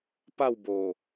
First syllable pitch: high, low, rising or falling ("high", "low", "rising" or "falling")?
falling